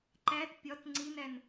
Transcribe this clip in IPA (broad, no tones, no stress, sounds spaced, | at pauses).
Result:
ǃ æ t pʲ ɒ t ŋ͡ǀ i n æ n